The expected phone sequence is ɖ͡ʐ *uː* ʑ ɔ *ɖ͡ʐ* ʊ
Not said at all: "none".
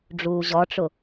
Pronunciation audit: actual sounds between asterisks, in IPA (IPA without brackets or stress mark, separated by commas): uː, ʈ͡ʂ